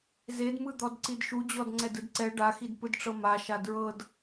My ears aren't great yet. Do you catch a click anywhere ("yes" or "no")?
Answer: yes